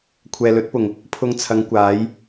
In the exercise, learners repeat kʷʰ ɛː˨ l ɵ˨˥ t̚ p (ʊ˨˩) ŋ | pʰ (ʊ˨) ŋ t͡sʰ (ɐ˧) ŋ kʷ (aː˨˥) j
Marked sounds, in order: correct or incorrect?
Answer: correct, incorrect: ʊ˧, incorrect: ɐ˨˧, correct

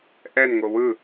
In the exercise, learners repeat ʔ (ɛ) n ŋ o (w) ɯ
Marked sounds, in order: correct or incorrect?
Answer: correct, correct

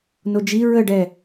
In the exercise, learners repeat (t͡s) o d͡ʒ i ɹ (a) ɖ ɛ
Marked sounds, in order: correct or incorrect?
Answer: incorrect: n, incorrect: ə

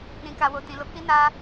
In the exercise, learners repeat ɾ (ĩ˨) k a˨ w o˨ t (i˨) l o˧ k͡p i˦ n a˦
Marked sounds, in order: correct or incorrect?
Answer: correct, incorrect: ĩ˨

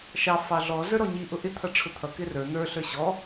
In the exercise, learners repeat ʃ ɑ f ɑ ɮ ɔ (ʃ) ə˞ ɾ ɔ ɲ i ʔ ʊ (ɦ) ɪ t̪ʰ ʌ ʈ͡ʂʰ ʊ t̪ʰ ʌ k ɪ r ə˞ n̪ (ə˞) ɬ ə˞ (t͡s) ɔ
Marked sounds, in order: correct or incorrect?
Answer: incorrect: z, incorrect: ʔ, correct, incorrect: ɕ

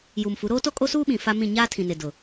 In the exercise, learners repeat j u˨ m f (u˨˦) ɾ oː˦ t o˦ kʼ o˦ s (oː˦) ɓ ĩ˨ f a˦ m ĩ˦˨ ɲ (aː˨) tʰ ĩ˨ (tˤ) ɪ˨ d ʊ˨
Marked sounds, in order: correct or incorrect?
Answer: correct, incorrect: uː˦, incorrect: aː˦, incorrect: n

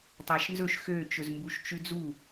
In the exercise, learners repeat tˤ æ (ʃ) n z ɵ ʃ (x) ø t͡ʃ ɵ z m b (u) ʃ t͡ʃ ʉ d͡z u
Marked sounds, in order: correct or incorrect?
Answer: correct, correct, correct

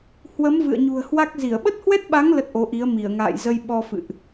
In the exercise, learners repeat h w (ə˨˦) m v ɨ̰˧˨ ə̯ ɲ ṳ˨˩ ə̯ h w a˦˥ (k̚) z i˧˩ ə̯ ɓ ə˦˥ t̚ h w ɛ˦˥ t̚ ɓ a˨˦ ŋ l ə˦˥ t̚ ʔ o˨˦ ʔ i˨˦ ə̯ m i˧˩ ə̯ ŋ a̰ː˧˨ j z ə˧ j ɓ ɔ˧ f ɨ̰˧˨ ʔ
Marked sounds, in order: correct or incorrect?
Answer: correct, correct

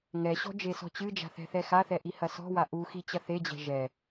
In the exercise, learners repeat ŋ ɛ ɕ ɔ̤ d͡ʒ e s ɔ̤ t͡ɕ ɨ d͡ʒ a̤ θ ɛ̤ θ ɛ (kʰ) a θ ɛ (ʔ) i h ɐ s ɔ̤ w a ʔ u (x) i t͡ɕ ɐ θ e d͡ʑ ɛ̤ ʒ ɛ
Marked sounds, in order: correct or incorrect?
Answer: incorrect: x, correct, correct

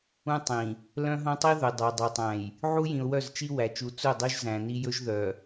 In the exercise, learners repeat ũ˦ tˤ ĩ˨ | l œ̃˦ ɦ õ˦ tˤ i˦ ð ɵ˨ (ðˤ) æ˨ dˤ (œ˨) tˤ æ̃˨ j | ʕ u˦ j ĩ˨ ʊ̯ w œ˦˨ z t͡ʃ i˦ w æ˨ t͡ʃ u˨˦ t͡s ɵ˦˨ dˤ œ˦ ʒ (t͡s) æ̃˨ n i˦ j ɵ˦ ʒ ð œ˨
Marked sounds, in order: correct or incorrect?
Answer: incorrect: dˤ, correct, incorrect: z

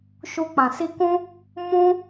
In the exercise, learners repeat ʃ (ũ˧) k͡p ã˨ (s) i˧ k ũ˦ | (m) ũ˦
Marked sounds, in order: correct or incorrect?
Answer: incorrect: u˧, correct, correct

